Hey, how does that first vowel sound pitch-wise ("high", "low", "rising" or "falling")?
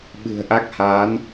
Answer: low